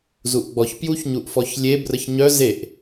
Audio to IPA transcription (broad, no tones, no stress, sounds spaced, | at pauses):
z u ʔ ɡ͡b ɔ ç p j u ç ɲ u ʔ f ɔ ç lʲ e b r ə ç ɲ œ z e ʔ